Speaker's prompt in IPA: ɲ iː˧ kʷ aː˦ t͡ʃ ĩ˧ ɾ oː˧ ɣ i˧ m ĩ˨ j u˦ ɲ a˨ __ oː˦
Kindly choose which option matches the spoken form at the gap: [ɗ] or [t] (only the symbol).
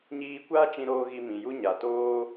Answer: t